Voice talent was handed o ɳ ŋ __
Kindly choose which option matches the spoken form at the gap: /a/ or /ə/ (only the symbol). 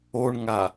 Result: a